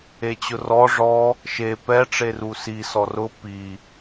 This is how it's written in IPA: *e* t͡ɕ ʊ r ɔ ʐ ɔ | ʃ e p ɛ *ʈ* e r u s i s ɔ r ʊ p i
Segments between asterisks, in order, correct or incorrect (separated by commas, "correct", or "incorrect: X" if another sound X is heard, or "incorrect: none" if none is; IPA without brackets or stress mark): correct, incorrect: ʈ͡ʂ